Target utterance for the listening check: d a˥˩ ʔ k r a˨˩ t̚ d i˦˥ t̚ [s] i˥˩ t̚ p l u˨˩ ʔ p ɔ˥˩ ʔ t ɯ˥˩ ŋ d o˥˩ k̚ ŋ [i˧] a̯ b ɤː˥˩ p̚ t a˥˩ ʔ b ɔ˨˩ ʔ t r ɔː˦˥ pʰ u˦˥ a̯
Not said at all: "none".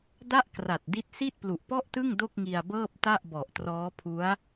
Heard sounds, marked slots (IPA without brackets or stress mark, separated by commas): s, i˧